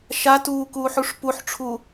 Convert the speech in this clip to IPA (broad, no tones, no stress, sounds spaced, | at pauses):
ʃ a t uː k uː ħ u ʂ p u ħ ʈ͡ʂʰ u